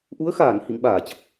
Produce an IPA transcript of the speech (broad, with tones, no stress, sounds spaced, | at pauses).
ʔ u˨˦ ə̯ x aː˧˩ n h ḭ˧˨ ŋ ɓ aː˧˩ t͡ɕ ə˨˩ p̚